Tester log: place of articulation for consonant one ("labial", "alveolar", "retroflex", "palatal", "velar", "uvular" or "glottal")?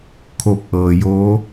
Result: velar